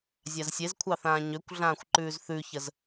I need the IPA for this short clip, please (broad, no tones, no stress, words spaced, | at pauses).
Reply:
zʲazsʲezkʷʰɑθãː ɲøkʷɮãːxʷǃʉːz θʉçəz